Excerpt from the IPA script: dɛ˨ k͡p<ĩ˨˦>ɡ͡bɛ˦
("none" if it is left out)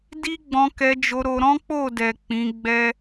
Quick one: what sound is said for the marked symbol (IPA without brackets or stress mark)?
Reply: ĩ˨˦